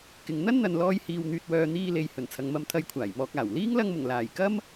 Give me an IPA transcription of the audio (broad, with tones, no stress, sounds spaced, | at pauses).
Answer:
k ɪ˨ ŋ n̪ ɐ˥ n n̪ ɐ˨ n l ɔː˧ j h iː˨ w n̪ yː˨ t̚ w œː˨ n̪ iː˧ l e˨ j h ɵ˨˩ n t͡sʰ ɐ˨ ŋ m ɐ˧ m t̪ʰ ɐ˧ j kʷʰ aː˨˩ j m ɔː˧ k̚ aː˨˩ w l iː˥ ŋ l ɐ˧ ŋ m ʊ˨˩ ŋ l aː˨˩ j k ɐ˥ m